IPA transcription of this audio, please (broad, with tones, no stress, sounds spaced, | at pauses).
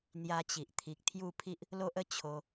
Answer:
n̪ j a˧ t͡ɕ i˨ ʔ t̪ʰ i˨ k̚ t̪ʰ j u˥˧ pʰ i˦ ʔ | l o˦ ʔ ə˦ t͡ɕʰ o˧